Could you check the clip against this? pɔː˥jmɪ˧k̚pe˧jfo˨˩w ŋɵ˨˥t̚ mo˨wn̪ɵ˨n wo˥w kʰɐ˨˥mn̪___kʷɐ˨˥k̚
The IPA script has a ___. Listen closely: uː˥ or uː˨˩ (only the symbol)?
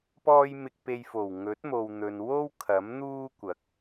uː˥